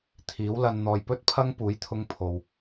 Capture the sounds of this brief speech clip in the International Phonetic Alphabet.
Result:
t̪ʰiː˨˥wlɐ˧nn̪ɔː˧j pɵ˥t̚pʰɐ˥ŋpuː˨˥j t̪ʰʊ˥ŋpʰo˨w

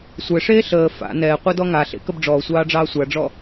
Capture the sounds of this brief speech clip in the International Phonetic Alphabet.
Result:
sʷɛʂeː ɬəː fa̰ nɛːqʷadɔ ŋaɬḛkəb ɖ͡ʐɔːsʷɑːɖ͡ʐɑː sʷaɖ͡ʐɔ

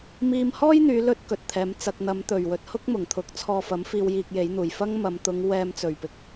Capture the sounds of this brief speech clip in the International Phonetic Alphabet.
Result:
miː˧mhɔː˥jn̪yː˨˧lɵ˧t̚ kɵ˨t̚t̪ʰɛː˨˧mt͡sɐ˧k̚ n̪ɐ˨˧m t̪ɵ˨˩ɥwɵ˨t̚ hʊ˥k̚mʊ˨˩ŋ t̪ʰʊ˧k̚t͡sʰɔː˧fɐ˨˥mfiː˧w jiː˧k̚je˨˥j n̪uː˨˩jfɐ˥ŋmɐ˨˧m t̪ʊ˨˧ŋ wɛː˧mt͡sɵ˨˩ɥpɪ˧k̚

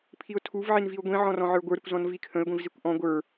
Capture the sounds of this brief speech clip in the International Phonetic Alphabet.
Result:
pʰiʊ̯tʰuv ʕinviʊ̯ɡʷĩ ʕɔ̃rɔ̃ʕə˞ɡʷə˞ ɾʏkʷzɔ̃nvikʰə̃ɪ̯ ɡʷĩvzikʷʔɔ̃ ɡʷə˞

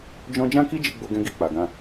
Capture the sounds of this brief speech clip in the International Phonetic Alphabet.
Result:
d͡ʒɔ̃˦ d͡ʒã˦ki˦d͡ʒi˧ ɡ͡bo˧ɡɛ̃˧ ɡi˧k͡pa˨ɡã˧

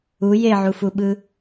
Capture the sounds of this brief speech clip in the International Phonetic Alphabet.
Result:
u jeʕufuɓɯ

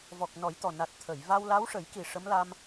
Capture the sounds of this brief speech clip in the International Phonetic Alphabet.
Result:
vɔ˨˩k̚ nɔ˨˩˦jt̪ɔ˨˩ na˨˩t̚t̪ʰə˨˩˨j va˧wla˧˥w ʂə˨˩˦jki˨˩ ʂə˧˥mla˧m

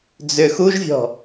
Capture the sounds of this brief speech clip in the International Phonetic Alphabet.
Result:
d͡zʏ xuʒvʲɔ̤

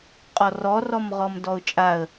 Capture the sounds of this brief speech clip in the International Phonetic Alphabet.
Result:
qʼɔrɔrɔm ʁɔmdɔʊ̯t͡ʃʼaə̯

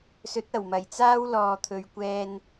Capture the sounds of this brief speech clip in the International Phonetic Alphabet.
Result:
sɵ˨˥t̚ɐ˨˩wmɐ˨˩jt͡saː˥w lɔː˨t̪ʰɵ˨ɥkʷɛː˧n

